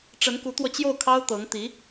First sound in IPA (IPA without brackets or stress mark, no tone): ʈ͡ʂ